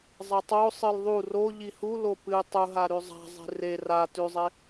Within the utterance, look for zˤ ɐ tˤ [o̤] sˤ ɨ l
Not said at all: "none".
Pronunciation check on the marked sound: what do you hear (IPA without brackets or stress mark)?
o